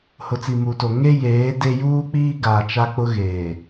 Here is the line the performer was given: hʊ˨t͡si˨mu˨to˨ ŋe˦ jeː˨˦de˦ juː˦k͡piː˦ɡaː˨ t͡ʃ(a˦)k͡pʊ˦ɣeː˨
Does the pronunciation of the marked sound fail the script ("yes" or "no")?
no